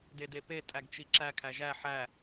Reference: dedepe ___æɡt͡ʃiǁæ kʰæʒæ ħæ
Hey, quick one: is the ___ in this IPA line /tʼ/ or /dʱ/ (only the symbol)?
tʼ